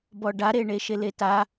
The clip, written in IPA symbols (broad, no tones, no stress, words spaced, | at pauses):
bɔɖaɾe ɳeʃeleta